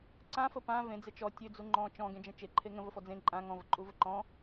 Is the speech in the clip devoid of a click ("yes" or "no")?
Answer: no